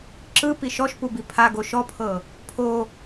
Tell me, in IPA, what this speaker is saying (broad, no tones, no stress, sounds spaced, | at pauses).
ǁ ɯ p i ʃ ɔ ʃ p u b i pʰ a ɡ o ʃ ɔ pʰ ɤ | pʰ o